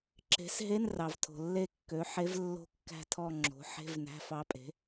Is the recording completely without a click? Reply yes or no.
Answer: no